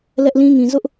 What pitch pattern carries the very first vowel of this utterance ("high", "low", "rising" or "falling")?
high